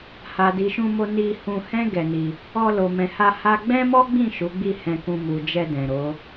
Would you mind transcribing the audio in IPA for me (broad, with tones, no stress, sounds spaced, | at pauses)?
h a˨ d i˨ ʃ ũ˧ m o˧ n i˧ h ũ˧ h ɛ̃˦ ɡ ɛ˧ n i˧ | ɔ˧ l o˨ m ɛ̃˨ h a˧ h a˦ ɡ͡b ɛ̃˦ m ɔ˦ ɡ͡b ĩ˦˨ ʃ u˨˦ ɡ͡b i˦˨ h ɛ̃˧ k ũ˧ m u˨ d͡ʒ ɛ˧ d ɛ̃˨ ɾ o˨˦